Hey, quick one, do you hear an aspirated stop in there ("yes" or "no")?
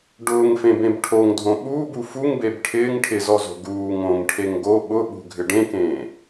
yes